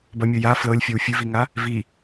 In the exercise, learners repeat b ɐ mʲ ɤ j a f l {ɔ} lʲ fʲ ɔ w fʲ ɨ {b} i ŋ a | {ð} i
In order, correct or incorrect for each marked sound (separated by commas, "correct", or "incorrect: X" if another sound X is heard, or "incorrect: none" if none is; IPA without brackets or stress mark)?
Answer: incorrect: ɤ, incorrect: v, incorrect: v